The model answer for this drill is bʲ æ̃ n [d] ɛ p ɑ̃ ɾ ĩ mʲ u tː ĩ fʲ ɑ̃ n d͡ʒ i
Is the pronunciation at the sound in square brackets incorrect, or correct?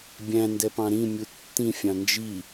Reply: correct